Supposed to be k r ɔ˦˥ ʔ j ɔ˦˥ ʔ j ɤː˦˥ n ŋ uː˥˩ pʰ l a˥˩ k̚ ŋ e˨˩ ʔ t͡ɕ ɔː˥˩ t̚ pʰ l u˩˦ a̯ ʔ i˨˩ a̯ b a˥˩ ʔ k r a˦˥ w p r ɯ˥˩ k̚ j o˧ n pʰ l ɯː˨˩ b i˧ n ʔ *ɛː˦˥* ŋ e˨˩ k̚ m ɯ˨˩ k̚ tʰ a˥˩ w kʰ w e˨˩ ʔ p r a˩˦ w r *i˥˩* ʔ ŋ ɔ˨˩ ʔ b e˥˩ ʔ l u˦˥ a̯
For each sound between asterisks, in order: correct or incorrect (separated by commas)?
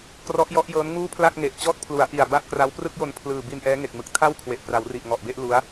correct, incorrect